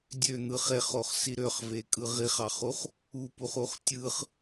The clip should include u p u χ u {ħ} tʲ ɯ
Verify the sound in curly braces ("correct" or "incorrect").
incorrect